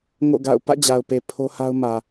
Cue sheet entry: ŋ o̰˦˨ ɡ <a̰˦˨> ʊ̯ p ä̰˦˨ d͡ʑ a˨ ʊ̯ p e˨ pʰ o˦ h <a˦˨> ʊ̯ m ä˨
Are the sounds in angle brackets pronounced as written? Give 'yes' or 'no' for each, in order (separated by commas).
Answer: yes, no